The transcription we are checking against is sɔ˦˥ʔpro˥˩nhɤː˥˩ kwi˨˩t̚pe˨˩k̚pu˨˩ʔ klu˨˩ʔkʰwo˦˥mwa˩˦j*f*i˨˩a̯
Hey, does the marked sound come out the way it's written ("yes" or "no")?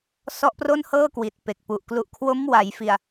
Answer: yes